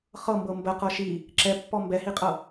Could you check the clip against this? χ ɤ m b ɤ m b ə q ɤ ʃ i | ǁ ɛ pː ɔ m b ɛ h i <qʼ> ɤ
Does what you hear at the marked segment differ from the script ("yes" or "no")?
no